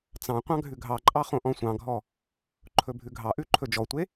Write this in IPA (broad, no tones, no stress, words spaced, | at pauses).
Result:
t͡sɑ̃ qʷɑ̃ɡʱʉɡʱɑǃʼɑ χõʔɔ̃sʷɑ̃ɡʱɔ | ǃʰɵbʱʉɡʱɑʔʉ ǃʰɵd͡ʒɔtʷe